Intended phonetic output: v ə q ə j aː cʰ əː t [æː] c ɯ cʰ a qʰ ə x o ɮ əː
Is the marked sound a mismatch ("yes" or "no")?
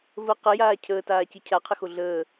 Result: yes